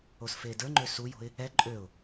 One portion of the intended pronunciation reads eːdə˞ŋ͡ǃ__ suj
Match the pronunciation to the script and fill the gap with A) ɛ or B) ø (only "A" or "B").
B